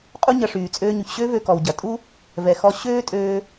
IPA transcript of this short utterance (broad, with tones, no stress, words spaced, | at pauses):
qʼu˥ɲɐ˧ʂyː˩ t͡sʼøː˧ɲy˩ç ɕø˥vø˧ kɔ˩wɟɐ˩ tʼu˥ | vɛ˩xɔ˧ ɕøː˥tʼøː˧